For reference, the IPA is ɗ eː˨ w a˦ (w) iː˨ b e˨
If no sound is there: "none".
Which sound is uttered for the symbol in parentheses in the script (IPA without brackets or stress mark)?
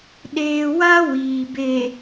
w